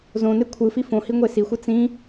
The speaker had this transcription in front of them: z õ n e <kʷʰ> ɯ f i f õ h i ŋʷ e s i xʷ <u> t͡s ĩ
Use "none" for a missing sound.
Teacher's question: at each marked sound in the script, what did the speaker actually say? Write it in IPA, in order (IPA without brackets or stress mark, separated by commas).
kʷʰ, ɯ